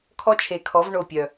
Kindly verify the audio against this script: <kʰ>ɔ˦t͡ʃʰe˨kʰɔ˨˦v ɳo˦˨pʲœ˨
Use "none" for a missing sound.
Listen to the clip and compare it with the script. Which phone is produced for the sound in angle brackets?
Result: kʰ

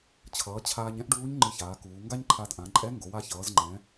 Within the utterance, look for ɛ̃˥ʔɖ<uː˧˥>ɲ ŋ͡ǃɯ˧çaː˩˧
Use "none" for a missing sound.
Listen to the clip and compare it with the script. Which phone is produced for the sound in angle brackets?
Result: uː˧˥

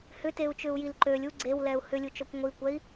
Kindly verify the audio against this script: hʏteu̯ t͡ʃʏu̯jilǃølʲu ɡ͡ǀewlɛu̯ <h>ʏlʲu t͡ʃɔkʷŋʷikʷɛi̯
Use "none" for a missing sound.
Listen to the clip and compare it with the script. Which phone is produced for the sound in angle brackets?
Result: h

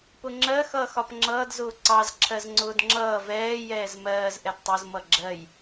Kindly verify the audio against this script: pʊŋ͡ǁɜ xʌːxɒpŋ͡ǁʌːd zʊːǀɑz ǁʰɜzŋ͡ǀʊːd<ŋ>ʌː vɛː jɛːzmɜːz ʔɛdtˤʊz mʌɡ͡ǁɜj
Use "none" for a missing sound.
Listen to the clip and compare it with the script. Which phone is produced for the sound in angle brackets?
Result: ŋ͡ǁ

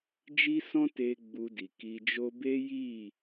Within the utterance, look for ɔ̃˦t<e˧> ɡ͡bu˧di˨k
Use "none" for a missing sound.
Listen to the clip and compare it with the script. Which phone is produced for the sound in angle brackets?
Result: e˧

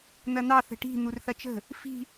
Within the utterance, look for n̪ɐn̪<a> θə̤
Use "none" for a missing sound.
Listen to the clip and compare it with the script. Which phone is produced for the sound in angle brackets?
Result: ɑ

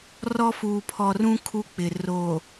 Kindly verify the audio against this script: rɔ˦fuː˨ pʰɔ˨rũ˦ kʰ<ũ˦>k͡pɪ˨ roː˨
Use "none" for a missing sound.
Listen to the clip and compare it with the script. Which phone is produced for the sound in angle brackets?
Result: u˦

